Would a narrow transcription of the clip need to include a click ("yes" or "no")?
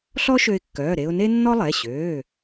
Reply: no